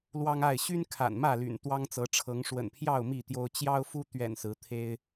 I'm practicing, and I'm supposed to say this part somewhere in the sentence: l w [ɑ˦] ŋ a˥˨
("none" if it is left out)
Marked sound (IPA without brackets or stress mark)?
ɑ˦